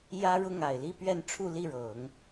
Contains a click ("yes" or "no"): no